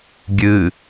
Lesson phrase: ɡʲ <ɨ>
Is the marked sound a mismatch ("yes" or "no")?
no